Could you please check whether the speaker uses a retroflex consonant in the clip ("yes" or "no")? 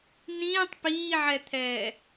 no